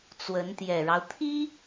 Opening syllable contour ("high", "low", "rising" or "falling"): rising